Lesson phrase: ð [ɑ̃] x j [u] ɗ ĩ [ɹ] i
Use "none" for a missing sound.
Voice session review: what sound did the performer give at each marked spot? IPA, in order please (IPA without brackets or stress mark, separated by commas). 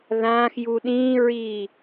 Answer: ã, u, ɹ